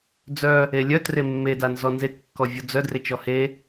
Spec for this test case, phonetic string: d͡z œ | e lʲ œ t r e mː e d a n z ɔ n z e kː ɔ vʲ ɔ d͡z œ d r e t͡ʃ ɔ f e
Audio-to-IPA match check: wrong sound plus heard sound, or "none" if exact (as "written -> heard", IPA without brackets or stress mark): f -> h